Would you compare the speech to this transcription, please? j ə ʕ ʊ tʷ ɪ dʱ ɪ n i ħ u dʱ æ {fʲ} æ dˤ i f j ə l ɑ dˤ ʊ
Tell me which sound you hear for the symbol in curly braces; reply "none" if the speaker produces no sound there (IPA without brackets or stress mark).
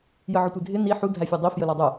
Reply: fʲ